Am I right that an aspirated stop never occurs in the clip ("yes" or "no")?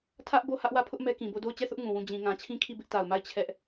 no